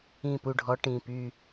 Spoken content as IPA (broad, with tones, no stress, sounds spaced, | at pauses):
ĩ˦˨ p u˦˨ ɖʱ ɔ˧˥ ʈ ĩ˩˧˩ p y˦˨